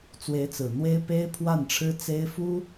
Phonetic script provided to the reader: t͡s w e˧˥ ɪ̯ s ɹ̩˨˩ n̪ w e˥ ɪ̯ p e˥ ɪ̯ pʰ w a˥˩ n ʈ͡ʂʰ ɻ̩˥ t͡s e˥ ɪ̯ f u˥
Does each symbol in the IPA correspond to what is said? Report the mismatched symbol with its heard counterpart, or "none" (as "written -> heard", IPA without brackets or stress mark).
s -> t͡s